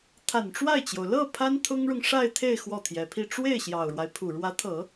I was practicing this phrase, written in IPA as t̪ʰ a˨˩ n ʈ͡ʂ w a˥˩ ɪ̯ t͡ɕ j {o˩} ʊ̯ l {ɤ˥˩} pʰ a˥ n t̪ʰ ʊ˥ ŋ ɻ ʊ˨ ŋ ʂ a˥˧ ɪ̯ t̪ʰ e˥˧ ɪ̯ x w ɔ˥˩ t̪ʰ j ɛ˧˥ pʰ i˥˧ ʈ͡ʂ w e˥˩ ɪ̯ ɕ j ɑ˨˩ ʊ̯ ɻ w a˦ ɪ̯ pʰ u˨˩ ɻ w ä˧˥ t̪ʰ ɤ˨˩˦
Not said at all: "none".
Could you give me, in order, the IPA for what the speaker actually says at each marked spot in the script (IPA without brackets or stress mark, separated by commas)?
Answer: o˩, ɤ˥˩